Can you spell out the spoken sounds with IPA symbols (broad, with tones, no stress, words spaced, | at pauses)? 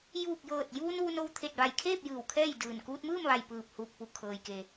juː˧˩k̚jɤː˧˩t̚ juː˧n ʋu˧no˧w t̪ʰe˧˩t̚ʋa˧˩jkʰeː˥˨p̚ jɯː˧˩wkʰɛː˥˨jdɯː˧˩n kuː˧t̚mɯː˥˨mʋa˧˩j pɯː˧˩p̚huː˧˩k̚pu˧˩ kʰɤː˩jke˩